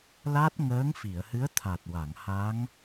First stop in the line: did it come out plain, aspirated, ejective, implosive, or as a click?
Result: plain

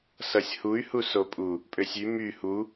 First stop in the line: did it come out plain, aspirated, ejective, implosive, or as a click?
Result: ejective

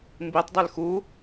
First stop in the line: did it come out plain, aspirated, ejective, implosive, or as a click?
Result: plain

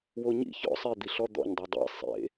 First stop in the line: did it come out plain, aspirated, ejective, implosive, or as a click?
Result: plain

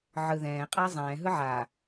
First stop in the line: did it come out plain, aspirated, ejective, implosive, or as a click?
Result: ejective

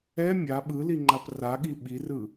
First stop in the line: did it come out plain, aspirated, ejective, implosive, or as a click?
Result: implosive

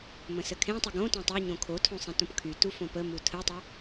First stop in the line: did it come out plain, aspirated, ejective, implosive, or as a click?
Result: aspirated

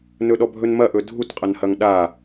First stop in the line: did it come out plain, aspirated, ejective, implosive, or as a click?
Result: implosive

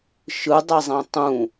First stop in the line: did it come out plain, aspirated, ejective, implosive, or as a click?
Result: plain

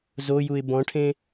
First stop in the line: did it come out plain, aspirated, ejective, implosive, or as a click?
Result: plain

